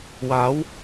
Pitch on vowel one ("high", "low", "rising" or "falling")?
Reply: rising